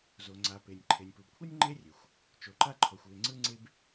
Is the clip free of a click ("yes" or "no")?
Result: no